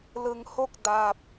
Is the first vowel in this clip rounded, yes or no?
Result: no